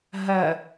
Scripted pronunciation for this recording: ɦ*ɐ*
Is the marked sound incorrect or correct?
correct